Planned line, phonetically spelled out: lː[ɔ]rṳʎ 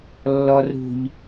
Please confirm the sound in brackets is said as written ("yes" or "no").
yes